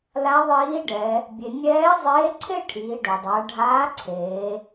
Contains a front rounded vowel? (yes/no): no